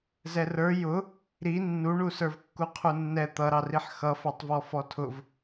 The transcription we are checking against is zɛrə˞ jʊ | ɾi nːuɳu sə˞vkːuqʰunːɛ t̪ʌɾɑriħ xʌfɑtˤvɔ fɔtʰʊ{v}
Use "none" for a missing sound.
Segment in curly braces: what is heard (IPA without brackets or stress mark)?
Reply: v